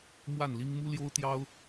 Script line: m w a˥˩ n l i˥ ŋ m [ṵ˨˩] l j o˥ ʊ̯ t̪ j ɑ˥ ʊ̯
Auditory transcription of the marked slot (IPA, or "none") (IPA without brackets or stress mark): u˥